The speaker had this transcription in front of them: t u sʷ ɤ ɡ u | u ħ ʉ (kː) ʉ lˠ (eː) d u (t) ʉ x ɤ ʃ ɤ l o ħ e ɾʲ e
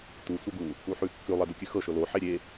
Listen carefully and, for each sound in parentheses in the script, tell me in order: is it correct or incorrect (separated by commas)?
correct, incorrect, incorrect